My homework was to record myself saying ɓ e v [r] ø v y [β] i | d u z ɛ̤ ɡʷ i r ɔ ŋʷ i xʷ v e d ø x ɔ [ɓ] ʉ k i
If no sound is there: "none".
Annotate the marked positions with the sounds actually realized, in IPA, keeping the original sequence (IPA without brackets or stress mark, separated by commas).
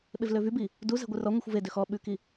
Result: l, b, ɓ